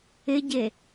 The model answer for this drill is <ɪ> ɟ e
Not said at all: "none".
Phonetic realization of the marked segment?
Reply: ɪ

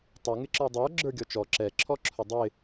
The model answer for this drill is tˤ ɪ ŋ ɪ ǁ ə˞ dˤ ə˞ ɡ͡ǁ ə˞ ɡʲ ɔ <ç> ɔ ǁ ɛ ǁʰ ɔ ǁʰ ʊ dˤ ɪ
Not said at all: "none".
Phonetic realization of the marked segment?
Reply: t͡ʃ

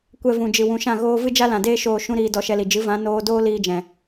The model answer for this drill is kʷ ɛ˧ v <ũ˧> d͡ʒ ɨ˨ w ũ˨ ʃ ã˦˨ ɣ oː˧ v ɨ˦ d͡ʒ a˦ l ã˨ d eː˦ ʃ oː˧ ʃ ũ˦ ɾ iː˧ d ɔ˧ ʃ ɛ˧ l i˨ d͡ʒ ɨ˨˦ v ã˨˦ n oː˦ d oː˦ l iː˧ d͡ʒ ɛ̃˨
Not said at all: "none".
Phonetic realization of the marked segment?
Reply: ũ˨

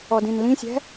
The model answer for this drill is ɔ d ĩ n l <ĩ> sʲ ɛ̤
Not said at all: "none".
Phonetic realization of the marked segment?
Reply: ĩ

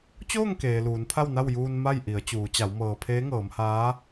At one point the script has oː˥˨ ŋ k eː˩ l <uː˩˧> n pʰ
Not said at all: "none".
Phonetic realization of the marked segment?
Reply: uː˩˧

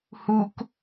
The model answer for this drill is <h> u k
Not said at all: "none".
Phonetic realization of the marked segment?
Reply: h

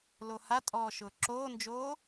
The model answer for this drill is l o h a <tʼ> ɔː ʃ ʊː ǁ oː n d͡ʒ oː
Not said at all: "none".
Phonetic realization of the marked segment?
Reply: tʼ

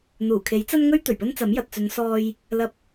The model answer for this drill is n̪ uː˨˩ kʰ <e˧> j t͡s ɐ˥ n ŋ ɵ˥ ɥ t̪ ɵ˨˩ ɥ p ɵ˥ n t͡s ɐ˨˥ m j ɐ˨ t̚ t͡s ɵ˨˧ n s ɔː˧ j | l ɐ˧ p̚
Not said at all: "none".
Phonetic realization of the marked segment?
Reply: e˨˥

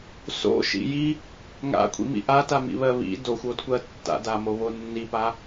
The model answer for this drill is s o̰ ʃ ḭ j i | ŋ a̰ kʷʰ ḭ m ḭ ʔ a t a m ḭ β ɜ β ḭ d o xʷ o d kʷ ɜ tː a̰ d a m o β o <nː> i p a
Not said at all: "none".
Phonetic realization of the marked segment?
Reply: nː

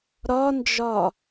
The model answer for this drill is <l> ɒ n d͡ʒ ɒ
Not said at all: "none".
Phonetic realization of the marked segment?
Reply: ɾ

